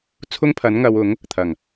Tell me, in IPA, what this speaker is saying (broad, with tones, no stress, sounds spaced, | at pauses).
t͡sʰ ʊ˥ ŋ pʰ ɐ˨˥ n ŋ ɐ˨˧ w ʊ˨˥ ŋ | t̪ʰ ɐ˨˩ ŋ